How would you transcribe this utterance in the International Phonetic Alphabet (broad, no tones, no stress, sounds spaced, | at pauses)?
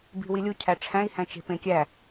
b i̤ w i lʲ u cʰ æ ʈ͡ʂʰ æ̃ i̯ h æ̃ t͡ʃ e̤ p ẽ kʲ æ